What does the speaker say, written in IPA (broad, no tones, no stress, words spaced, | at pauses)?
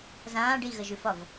zãːɖ iɣəʒʉfɒv